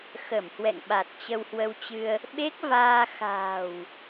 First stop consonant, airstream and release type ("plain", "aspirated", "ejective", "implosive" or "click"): implosive